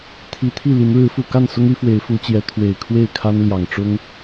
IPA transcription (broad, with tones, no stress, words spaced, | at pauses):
t̪ʰi˨˦t̪ʰi˥˨li˨˦n ɻɻ̩˨˦fu˨˩ ka˥˨nsʊ˦ŋy˨˦ fwe˨˦ɪ̯fu˨˦t͡ɕjɛ˨˦ t̪ʰwe˨˩ɪ̯ kʰwe˥˨ɪ̯kʰa˦nljɑ˨˩ŋ ʈ͡ʂʊ˦ŋ